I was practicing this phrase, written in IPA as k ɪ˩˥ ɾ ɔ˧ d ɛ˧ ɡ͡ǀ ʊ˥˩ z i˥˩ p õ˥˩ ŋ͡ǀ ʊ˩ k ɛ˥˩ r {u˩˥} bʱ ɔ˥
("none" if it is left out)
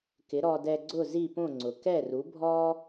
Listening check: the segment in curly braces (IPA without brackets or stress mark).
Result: u˩˥